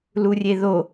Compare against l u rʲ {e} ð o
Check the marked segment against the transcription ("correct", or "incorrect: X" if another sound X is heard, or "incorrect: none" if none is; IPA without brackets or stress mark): correct